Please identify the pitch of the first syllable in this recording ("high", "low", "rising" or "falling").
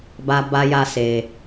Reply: high